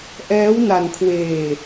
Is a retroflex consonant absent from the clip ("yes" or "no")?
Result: yes